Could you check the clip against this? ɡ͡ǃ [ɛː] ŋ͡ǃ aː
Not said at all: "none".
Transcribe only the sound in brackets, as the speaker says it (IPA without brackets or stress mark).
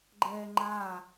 ɛː